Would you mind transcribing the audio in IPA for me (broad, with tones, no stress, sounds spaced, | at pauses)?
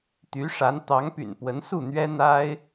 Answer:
t̪ y˧˥ ʂ a˧˥ n t̪ ɑ˧˥ ŋ p y̰˨˩ n p w ə˧˥ n s u˥˩ n̪ ɥ ɛ˥ n̪ a˥ ɪ̯